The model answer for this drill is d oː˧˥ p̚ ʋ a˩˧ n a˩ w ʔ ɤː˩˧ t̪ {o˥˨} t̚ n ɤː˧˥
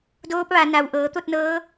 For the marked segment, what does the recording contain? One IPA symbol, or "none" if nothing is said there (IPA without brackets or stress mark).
o˥˨